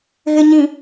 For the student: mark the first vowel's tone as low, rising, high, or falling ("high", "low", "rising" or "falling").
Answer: low